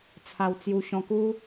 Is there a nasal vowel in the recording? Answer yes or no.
yes